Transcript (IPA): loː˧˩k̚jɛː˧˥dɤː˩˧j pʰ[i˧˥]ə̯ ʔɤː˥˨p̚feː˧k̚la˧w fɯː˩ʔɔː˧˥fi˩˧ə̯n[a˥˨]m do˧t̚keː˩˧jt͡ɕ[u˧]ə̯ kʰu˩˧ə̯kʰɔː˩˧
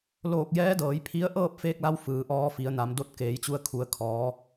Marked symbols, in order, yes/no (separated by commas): yes, no, yes